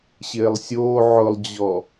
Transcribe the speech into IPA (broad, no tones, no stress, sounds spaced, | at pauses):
ɕ ɪː lˠ sʲ oː ʕ ʊ lˠ d͡ʑ ɔ